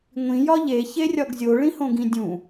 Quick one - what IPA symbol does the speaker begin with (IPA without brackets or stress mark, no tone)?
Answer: ŋʷ